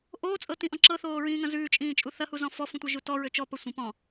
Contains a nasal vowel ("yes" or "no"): yes